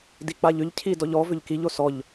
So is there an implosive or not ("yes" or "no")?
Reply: no